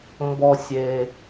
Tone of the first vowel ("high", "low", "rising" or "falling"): low